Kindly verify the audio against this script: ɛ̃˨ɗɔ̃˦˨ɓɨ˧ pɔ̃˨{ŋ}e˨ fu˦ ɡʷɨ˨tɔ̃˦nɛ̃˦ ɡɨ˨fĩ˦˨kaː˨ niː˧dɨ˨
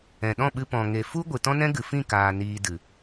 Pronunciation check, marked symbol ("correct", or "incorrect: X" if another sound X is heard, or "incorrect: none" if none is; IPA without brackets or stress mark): correct